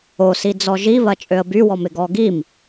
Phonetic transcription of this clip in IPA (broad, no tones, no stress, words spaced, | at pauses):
osi d͡zɔʒiβɐ t͡ʃʼøə̯bywɔmɪ ɡɔɡim